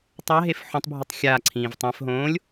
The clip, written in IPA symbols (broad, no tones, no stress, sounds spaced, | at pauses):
tˤ a ɦ e f ħ õ tˤ bʱ u tˤ xʲ a ǀʰ ĩː v tˤ ɛ̃ f ɦ õː lʲ